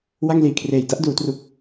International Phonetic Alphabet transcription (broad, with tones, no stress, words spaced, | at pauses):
wa˥˩ŋliː˨˩kʰreː˨˩j da˥˩ʔduː˩˦tru˨˩k̚